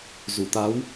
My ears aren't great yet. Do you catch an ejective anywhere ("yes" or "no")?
no